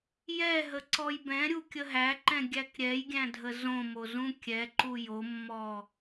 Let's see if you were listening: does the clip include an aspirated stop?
no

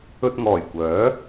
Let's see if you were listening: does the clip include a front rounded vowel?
yes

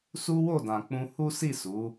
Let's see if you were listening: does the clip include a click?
no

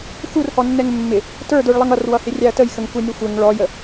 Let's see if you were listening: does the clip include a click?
no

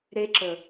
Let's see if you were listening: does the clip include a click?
yes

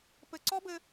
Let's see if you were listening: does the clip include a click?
yes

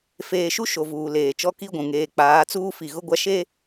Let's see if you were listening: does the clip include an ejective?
no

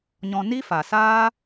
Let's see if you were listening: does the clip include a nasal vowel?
yes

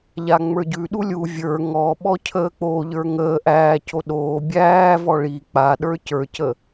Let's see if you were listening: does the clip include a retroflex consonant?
yes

